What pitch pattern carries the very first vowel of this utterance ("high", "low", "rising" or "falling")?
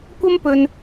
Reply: high